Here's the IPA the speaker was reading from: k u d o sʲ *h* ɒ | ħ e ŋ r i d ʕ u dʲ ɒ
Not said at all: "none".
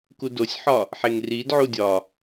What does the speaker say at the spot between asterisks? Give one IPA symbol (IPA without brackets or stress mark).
ħ